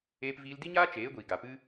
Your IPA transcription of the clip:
eː˧pviː˧l di˦ɲaː˦ t͡ʃeː˨˦ɡʷiː˨ ɡa˨pɨ˧

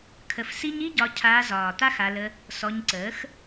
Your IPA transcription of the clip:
kʰə˧fsi˦ɲ i˦ɟɒ˧ cʰaː˧zɒː˨ t̪a˦xa˧lə˧ | sɔ˧ɲǀəː˨˦x

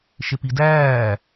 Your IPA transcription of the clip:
ʃepidæː

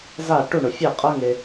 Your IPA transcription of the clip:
za˥˧ ʈu˥˧ɳʊ˧fʲɛ˥˧qʼɤ˥ ŋe˥

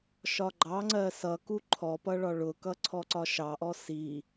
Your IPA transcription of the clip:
ʃɒɡ͡ǃɑŋ͡ǀɜ sʌku ǃʰɔpʌ ɭɒɭʊkʌ ǀʰɔǀɒʃɑʔɔ si

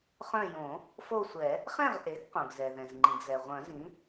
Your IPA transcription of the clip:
χœ̃˦˨jõ˨˩˦ | fo˦˨sʷɛ˨˩˦ | χɛ̃˦˨ʁʔe˩˥ɡ qõ˩ɡzɛ˩ðɛ̃˩z ŋ͡ǃĩ˩ɡzɛ˩ ʁʷœ̃˨˩˦zĩ˩˥

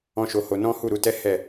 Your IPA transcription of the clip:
ɔ̃˦ʃo˧ho˧ nɔ̃˦ hu˦˨ɾu˨˦tɛ˦ hɛ˦˨

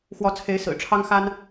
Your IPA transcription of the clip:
xwɔ˨˦t͡sʰe˨˦ɪ̯ sɹ̩˨˩ʈ͡ʂʰɑ˦ŋ xa˦n

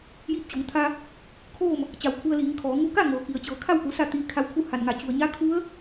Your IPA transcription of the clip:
jiː˧p̚t͡ɕo˩˧ŋt̪ʰa˧ | kʰoː˥˨m | t͡ɕa˧˩wkʰu˧ə̯liː˩˧ŋkʰɔː˩˧ ŋu˧ka˥˨ŋɤː˩ki˩ə̯ t͡ɕɤː˩˧kʰa˥˨wku˩˧ sa˥˨t̪iː˧kʰa˧˥wkʰu˥˨ ha˧˩nŋa˧˩ t͡ɕu˩ə̯ɲa˧˥ kʰu˧˥ə̯

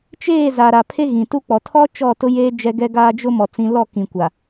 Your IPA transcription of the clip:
t͡ʃeː˦˨za˨ ɾa˨ pʰe˦ɣĩ˨tu˦ k͡pɔ˨ tʰɔ˦ t͡ʃɔ˦˨tʊ˦jeː˦ d͡ʒɛ˦ɡɛ˦ɡaː˦ d͡ʒʊ˦mɔ˨ t͡sĩ˦ lɔ˦˨kĩ˨kʷa˨

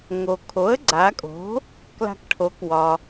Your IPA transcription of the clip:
ŋo˩ kʰo˩˥ə̯ɡ͡ǀa˩˧kʼo̤˩˥ | kla̤˧kʈʰo˩˥kwɒ˩

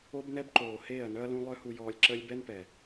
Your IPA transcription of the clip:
o˦bnɛ˦bǃoː˨ heː˦˨ɐ̯nœ˦ɐ̯lũ˦ lˠœ˦hu˧jɔː˧lʲǁəː˦lʲ bɛ˦npɛ˨

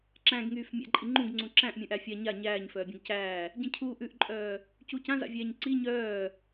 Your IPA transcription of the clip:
ǁæ̃ɡŋyːf mʲa̰ǃʼiŋ͡ǃũɡŋ͡ǀũ ǁæ̃ʔmʲũʔæ fʲa ɲa ɲæːɲ fœːbʲœ̃ɡcæː | ɟĩcʰu ʔʉʔǃʼœː | cuːcãza̰vʲæːɲ ǀi ɲœː

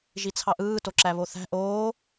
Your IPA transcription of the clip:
ʒit͡sʰɑʔɯː toǁæβoθæ̤ ʔoː

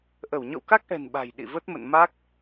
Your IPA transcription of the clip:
ʔə˧˩wɲɔ̰˧˨wka˦˥k̚ʔɛ̤˨˩n ɓa̤˨˩j ɗḭ˧˨və˦˥t̚ mə̰˧˨nma˦˥k̚

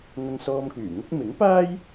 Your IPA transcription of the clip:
ŋɐ˧ŋsɔː˧mkyː˨˩ŋʊ˥k̚ mɪ˨˥ŋpaː˥j

